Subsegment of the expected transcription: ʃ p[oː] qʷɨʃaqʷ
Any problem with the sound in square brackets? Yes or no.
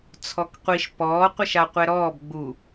yes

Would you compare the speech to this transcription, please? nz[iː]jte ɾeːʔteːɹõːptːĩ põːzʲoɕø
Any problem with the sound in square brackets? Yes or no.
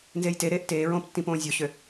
yes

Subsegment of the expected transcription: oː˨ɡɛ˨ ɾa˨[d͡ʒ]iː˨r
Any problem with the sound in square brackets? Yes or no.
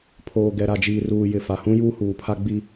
no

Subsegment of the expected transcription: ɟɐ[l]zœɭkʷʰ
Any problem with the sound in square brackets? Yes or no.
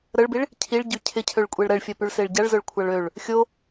yes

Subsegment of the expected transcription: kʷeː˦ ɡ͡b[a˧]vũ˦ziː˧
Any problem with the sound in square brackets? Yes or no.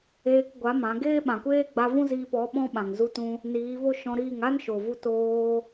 no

